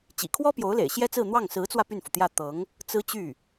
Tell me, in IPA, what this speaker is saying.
t͡ɕ ḭ˨˩ kʰ w ɔ˥ p j o˧˥ ʊ̯ l ḛ˨˩ ɪ̯ ɕ j ɛ˥ t͡s ɹ̩˥˧ n̪ w ɑ˥˩ ŋ s ɹ̩˧˥ t͡s w ä˧ p y˥˩ n f u˩ t̪ j ä˥˩ t̪ ɤ˧˥ ŋ | t͡s ɹ̩˥ t͡ɕ y˥˩

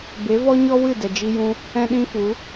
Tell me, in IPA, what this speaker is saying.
b e˨˦ v ɔ˦ ɲ ɔ˦ w ɨ˦˨ d ɛ˨ d͡ʒ i˧ j ũ˧ | ɛ̃˦ ɗ ĩ˦ f u˨˦

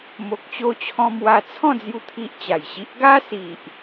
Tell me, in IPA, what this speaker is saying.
m o˨ k̚ t͡ɕ o˧ t͡ɕʰ ɔ̃˧ m w a˧ t͡sʰ ɔ̃˥˧ d͡z j u˦ t̪ʰ i˦ ʔ t͡ɕ a˨˩ j ɕ i˦ ʔ ɡ a˦ s i˨ ʔ

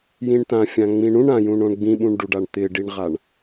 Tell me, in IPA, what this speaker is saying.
j ĩ ɳ t ã fʲ ã ŋ͡m ĩ ɳ ũ ɳ ã j ũ ɳ õ ɳ ɡ͡b ĩ ɓ ũ ɳ ɖ u ɖ a ɳ t̪ ɪ ɖ i ɳ ʁ a ɳ

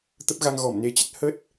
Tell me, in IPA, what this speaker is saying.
t̪ ə˦˥ p̚ ɣ a˧ ŋ ɣ ɔ˧˩ m n e˧ t͡ɕ ə˦˥ t̚ h ə˦˥ t̚

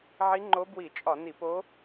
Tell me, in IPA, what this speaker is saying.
ʕ i˧˥ ŋ͡ǃ o˧˥ b w i˧˩˧ t͡ʃʼ ɒ˧˩˧ n i˧˩˧ p o˧˥

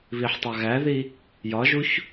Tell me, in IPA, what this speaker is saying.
β i ħ tˤ ɑ ɣ æ ð i | j ɒ ʒ u ç

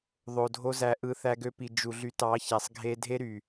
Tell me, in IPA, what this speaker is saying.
ðˤ o˨ dʱ o˦ z æ˧ ʔ ɯ˨ θ æ˧ ɡ ø˧ p i˨ d͡ʒ u˨ ɮ y˨˦ t ɑ˨˦ ç æ˨ sˤ ɡʱ e˧ dʱ e˦ ɾ y˨

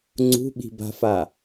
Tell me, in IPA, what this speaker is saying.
ŋ͡ǀ ṳ ɓ i̤ b a̤ f a

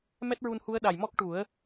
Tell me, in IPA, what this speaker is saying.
m ɛ˦˥ t̚ ɹ u˧ n h u˧˥ ə̯ ɗ a˨˩ j m ɔ˦˥ k̚ ʈ u˨˩˦ ə̯

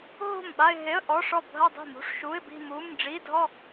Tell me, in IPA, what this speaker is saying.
ɦ o̤˥˩ m ɓ a˥˧ ɪ̯ ɦ e˧˥˧ ə̯ ʔ ɔ˧˥˧ ʂ ɔ˥˩ bʱ ɐ˥˧ dˤ i̤˥˩ m ṳ˧˥˧ ʂ ʃ uː˧˥˧ ɪ̯ b i̤˥˧ m uː˧˥˧ m ɖ͡ʐ i˧˥˧ dʱ ɔ˥˧

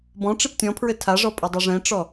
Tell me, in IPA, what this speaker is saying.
b ɔ̃ ʈ͡ʂ i p tʲ ɔ̃ pʰ ɹ ɘ tʰ a ʐ ɔ pʼ ə dˤ ɛ ʐ ɛ̃ ʈ͡ʂ ɔ

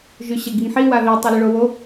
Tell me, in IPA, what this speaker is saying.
ʒ y ɕ ə ɡ i ŋ ħ i w a ð i tˤ e l ə ɭ o w o

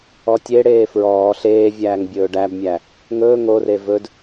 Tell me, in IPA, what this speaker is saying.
ɔ tʲ e ɽ eː f ɹ ɔː ɬ eː vʲ æː ŋ bʲ ɵː ɖ æ b mʲ æ | ŋ ɵː ŋ o r e v ɵ d

